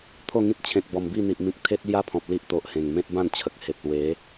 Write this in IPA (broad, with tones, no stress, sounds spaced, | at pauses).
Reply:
t̪ʰ o˥˧ ŋ ĩ˦ t̚ t͡ɕʰ ẽ˨ k̚ b ɔ˨˩ m b i˥˧ n̪ i˨ ʔ m ĩ˨ k̚ t̪ʰ e˦ t̚ l j a˦ pʰ ɔ̃˨ p̚ l i˦ ʔ t̪ o˨ ʔ h ẽ˨˩ ŋ m ẽ˦ t̚ b ã˥˧ n t͡ɕʰ ə˨ k̚ h e˨ p̚ l w e˨˦